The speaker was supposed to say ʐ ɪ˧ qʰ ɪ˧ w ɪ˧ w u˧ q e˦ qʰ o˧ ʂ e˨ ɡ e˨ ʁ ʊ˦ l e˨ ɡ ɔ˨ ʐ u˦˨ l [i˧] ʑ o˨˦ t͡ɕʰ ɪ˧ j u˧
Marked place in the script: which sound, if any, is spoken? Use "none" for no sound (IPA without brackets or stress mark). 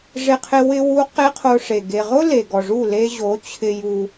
e˧